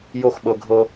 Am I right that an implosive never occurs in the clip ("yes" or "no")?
no